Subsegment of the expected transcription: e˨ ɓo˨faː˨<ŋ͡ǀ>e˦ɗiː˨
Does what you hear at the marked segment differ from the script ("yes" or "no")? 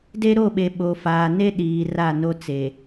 yes